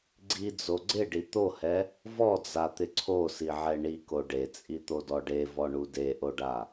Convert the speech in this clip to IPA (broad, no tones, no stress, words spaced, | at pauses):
ɡ͡ǀid͡zo ɡ͡ǀɪɖi t̪ohɛ | vɔd͡zat̪ɪ ǀʰosiʕɛ ɳiko ɖet͡sʼit̪odɔ ɖevɔɳu deʔoɖa